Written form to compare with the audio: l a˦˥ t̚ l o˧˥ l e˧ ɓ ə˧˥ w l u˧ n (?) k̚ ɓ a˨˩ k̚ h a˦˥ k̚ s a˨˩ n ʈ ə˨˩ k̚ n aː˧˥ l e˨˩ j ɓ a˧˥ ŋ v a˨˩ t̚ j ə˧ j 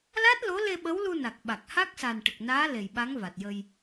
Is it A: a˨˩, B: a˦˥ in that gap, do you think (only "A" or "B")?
A